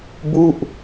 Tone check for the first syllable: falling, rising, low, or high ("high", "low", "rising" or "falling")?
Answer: falling